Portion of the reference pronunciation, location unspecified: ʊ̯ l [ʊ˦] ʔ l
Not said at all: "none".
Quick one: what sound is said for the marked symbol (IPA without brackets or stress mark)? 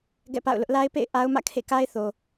ʊ˦